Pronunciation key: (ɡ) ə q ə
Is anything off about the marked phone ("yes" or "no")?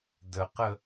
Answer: yes